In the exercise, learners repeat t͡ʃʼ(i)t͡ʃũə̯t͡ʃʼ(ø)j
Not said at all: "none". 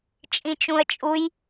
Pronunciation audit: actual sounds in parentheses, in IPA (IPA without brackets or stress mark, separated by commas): ĩ, u